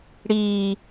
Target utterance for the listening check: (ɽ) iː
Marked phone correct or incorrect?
correct